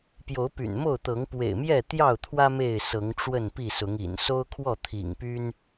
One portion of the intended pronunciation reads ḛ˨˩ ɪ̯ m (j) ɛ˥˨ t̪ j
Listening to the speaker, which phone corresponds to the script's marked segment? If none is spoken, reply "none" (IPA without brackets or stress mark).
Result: j